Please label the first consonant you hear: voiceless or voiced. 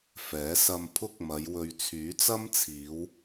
voiceless